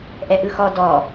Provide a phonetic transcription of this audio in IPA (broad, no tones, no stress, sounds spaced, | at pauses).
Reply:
ʔ ɛ ʔ ɯ x ɔ d ɔ